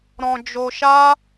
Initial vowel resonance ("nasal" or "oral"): nasal